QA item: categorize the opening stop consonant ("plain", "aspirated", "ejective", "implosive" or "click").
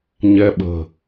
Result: implosive